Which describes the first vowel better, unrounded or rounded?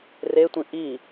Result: unrounded